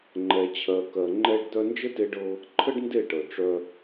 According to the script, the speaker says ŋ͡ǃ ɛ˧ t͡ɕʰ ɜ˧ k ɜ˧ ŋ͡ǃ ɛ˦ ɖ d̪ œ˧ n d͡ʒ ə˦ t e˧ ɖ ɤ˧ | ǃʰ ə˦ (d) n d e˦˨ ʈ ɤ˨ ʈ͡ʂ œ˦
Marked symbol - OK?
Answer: no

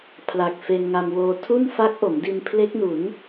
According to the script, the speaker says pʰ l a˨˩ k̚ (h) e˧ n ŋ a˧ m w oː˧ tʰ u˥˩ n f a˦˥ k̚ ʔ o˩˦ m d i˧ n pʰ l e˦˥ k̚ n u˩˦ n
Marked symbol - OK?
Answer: no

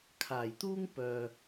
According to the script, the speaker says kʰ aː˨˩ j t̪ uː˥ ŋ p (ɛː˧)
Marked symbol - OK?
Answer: no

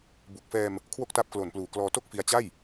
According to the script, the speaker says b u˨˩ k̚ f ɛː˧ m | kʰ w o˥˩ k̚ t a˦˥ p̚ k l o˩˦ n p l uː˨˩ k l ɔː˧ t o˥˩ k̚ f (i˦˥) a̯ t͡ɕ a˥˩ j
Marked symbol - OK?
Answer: no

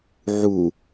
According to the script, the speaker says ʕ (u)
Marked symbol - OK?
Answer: yes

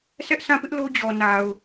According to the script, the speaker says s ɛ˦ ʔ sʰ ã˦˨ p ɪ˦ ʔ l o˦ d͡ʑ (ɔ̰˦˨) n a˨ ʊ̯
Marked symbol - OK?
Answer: no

